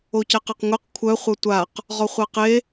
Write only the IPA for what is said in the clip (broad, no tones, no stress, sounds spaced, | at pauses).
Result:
o c æ q a q ŋʷ e q kʷʰ œ χʷ œ tʷ a q | ʁ ɔ χʷ æ q e